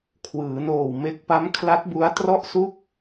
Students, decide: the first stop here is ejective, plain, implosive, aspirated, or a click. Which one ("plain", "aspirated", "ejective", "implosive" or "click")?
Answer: aspirated